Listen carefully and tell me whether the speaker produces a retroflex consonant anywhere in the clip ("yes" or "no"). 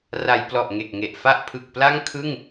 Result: no